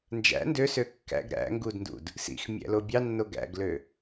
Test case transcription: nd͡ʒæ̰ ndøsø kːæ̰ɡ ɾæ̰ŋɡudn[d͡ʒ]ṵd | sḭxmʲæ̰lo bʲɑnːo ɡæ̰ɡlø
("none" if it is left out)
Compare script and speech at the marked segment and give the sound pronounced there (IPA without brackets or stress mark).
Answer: d